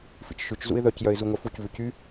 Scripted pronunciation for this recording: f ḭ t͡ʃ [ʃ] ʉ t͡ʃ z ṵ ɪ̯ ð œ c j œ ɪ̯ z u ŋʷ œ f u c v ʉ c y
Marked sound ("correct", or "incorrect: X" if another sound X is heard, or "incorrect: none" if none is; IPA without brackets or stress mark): correct